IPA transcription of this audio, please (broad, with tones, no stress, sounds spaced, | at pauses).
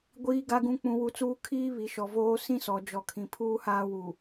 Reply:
ɡʷ iː˨ ɡ a˨ ɡ ũ˨ k͡p ũ˨ w u˨ t͡s uː˦ kʰ iː˦ β i˨ ʃ ɔ˨ v oː˦ s ĩ˦ s ɔ˨ d͡ʒ ɔ˨ kʰ ĩ˨ pʰ uː˦ h aː˦ w u˨